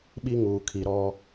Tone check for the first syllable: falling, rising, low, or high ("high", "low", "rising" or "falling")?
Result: high